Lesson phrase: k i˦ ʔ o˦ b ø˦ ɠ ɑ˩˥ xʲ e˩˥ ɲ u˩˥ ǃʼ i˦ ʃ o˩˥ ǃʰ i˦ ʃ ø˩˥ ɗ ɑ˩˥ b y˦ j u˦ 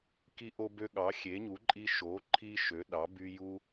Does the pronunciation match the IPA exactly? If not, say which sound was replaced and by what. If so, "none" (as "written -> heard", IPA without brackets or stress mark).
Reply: none